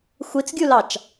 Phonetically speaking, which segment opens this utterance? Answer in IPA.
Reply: xʷ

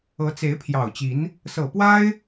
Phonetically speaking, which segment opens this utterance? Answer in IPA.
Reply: ɤ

